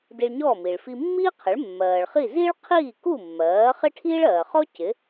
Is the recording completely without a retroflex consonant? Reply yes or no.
no